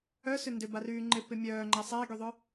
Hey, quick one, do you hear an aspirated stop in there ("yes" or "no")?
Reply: no